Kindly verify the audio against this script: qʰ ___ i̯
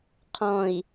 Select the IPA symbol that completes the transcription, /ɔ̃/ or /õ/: ɔ̃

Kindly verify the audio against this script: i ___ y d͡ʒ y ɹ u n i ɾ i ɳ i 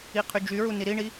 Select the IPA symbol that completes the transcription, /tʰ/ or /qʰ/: qʰ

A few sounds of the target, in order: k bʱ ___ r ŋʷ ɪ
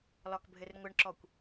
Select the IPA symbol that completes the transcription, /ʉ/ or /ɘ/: ɘ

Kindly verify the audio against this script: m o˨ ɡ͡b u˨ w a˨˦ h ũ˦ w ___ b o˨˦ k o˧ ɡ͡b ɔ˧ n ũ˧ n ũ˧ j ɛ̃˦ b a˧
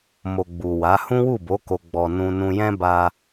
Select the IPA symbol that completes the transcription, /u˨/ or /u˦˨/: u˦˨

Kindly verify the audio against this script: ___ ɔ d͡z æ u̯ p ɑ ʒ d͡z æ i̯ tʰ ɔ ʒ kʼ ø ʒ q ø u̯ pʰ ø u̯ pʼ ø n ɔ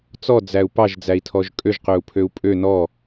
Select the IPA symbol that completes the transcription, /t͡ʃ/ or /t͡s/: t͡s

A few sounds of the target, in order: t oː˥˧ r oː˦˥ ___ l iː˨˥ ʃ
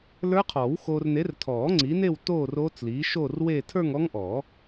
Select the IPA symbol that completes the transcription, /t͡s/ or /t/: t͡s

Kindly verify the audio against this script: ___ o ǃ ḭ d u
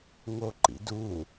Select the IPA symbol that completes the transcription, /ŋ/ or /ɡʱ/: ŋ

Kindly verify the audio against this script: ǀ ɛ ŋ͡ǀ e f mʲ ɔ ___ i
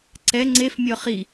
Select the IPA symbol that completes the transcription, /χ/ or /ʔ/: χ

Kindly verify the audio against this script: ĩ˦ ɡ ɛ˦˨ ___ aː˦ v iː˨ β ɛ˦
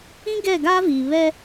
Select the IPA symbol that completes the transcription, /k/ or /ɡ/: ɡ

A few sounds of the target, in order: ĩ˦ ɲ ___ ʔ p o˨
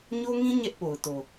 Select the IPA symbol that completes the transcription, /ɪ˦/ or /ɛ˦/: ɛ˦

